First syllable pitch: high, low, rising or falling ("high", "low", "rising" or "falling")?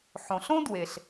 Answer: low